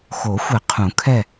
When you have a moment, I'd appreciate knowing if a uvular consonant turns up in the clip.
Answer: yes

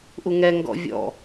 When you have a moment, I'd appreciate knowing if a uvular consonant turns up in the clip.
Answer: no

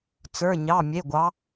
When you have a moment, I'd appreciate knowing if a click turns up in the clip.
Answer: no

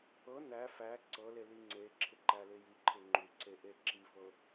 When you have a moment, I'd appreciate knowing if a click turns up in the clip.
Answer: yes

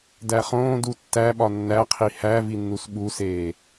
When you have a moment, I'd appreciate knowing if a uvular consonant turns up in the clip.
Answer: yes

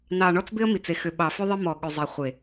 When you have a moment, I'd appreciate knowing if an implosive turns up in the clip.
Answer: yes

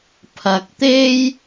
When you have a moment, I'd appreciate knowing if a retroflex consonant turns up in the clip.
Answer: no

